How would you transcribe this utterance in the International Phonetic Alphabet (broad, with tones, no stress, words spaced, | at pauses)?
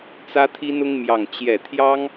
t͡sä˥t̪ʰi˥nʊ˥ŋ mjɑ˥˧ŋt͡ɕjɛ˥˩ t̪ʰjɑ˥ŋ